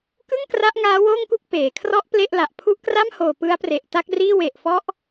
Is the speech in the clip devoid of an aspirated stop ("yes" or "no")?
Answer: no